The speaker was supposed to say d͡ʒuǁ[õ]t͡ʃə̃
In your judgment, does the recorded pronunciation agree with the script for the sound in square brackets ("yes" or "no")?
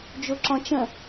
no